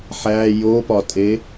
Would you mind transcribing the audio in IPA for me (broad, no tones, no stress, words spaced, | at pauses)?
ħæ jopɒtʼe